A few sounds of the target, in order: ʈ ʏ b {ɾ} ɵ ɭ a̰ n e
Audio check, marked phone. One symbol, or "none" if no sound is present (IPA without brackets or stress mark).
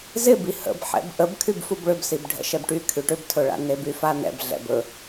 tʰ